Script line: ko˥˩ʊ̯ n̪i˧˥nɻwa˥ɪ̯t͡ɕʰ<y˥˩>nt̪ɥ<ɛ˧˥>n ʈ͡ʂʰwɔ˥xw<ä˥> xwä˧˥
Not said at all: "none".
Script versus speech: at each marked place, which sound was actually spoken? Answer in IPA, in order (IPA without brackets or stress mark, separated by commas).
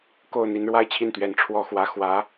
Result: i˥˩, ɛ˧˥, ä˥